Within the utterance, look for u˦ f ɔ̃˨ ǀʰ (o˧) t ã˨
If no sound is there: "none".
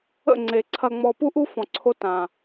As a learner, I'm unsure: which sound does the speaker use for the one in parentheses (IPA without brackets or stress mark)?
o˧